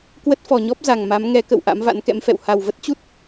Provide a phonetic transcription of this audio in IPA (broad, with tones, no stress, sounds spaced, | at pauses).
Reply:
k w ə˦˥ t̚ f ɔ˨˩ ɲ ɔ˦˥ p̚ z a˨˩ ŋ m a˨˦ m ŋ ɛ˨˦ k ə̰˧˨ w ʔ a̰˧˥ m v a̰˧˥ n k ɛ̰˧˥ m f ɛ̰˧˨ w h a˨˩ w v ə˦˥ t̚ t͡ɕ u˦˥ t̚